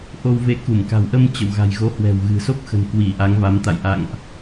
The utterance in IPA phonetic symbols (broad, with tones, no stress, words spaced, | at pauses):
ʔo˧wve˧ ku˧˩mka̤˨˩wʔə˧m t͡ɕə̰˧˨w ɣa̤˨˩jɣo˨˦ hwɛ̤˨˩wɣɨ̤˨˩so˦˥p̚xə̤˨˩n kwi˧˩ ʔa˨˦ŋva˨˦mt̪a̰˧˨j ʔa̰˧˨ŋʔ